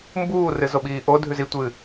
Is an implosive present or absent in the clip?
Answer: present